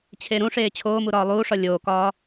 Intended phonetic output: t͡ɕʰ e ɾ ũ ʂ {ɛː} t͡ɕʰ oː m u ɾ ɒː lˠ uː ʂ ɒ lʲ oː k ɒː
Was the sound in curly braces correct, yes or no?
no